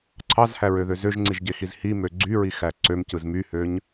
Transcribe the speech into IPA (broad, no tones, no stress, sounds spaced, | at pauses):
ǀʰ ɑ z h æ ɹ ø ð ø z ø ʒ ŋ͡ǀ i ʒ ɟ e x i z h i m ø ɡ͡ǀ y ɹ i x æ ǀ ø m c ɯ z m y h ø ɲ